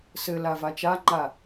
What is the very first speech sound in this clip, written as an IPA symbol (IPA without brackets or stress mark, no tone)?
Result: s